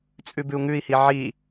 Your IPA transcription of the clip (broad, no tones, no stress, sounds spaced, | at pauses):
t͡sʼ ʉ b ʉ u̯ ŋ ʉ i̯ h i ʕ i